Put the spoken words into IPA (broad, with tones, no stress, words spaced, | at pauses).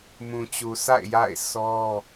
mũ˨t͡ɕu˨sa̰˦˨ɪ̯ ja̰˦˨ɪ̯ sɔ˦